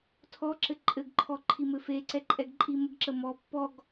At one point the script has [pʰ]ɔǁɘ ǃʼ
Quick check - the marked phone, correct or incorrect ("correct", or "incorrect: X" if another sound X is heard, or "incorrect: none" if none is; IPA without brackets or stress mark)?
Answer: incorrect: tʰ